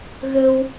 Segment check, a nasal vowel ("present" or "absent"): absent